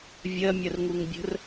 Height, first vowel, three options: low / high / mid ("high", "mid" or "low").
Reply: mid